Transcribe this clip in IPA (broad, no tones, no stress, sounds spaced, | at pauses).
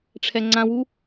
ʈ͡ʂʰ ɛ ŋ͡ǀ ã w u